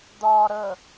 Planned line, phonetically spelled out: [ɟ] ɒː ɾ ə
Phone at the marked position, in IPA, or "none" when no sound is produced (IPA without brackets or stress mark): d̪